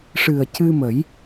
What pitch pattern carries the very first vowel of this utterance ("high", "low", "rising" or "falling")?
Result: low